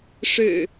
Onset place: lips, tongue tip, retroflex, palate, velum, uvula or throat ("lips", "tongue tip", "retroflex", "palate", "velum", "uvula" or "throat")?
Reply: retroflex